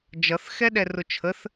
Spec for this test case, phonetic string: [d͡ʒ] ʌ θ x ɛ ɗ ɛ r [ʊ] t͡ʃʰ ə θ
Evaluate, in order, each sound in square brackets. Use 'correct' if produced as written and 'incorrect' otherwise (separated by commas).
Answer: correct, correct